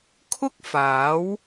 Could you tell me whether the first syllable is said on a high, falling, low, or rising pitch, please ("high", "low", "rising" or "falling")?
high